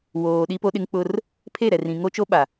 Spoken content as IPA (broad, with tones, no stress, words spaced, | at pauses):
woː˨ɗi˦po˦ɗɪ˦ŋ k͡pʊ˦r | pʰe˦˨ɾɛ˨rĩ˨ ŋo˦t͡ʃo˦ ɓa˨